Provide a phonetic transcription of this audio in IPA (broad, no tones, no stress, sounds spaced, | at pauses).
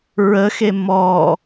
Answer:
ɹ ə x e m ɔ